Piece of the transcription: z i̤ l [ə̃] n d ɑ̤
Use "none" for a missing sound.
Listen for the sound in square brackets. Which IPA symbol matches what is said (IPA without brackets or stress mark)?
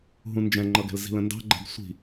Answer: ə̃